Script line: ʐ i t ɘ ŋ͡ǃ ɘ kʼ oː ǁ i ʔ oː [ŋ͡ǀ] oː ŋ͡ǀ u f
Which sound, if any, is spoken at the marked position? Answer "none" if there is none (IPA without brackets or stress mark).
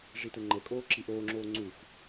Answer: ŋ͡ǁ